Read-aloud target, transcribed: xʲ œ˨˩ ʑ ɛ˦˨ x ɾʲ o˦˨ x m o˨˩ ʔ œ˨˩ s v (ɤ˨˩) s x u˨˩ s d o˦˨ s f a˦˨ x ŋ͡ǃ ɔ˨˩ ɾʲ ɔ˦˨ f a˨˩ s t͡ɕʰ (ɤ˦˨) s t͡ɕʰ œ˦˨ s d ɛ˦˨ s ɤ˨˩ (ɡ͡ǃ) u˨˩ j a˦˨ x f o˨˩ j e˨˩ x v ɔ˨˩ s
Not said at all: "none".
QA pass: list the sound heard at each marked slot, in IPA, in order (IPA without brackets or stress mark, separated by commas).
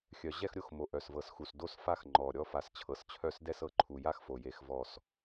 ɤ˨˩, ɤ˨˩, ǃʰ